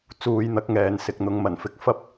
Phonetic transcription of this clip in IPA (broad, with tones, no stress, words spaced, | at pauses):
t͡suː˧jn̪ɐ˨˥k̚ŋɛː˨n sɪ˨k̚n̪ʊ˨ŋmɐ˨˩nfɪ˧k̚ fɐ˥p̚